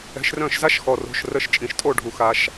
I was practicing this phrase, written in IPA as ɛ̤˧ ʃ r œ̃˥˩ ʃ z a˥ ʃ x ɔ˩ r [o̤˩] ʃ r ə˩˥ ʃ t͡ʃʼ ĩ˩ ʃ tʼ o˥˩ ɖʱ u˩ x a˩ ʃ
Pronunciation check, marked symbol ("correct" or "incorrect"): correct